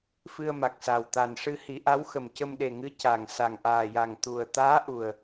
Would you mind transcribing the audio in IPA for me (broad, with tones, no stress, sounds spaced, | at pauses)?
f ɨ˧ ə̯ m a˨˩ k̚ s a˨˩ w t̪ a˨˩ n ʂ ɨ˧ h i˨˩˦ ʔ a˧˥ w x ə˨˩ m c ə˧ m ɗ e˨˩ ŋ ɨ˧˥ c a˨˩ ŋ s a˨˩ ŋ ʔ aː˨˩ j a˨˩ ŋ t̪ u˨˩ ə̯ t̪ aː˧˥ ʔ u˨˩ ə̯